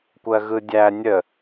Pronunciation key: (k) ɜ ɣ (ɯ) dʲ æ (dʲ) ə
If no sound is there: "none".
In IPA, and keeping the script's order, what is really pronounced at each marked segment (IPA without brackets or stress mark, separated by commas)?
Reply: kʷ, ɯ, nʲ